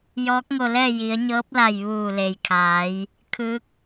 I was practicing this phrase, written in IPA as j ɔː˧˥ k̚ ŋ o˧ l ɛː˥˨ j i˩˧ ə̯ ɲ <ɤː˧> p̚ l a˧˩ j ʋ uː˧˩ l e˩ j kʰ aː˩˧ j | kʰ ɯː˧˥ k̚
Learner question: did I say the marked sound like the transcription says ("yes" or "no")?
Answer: no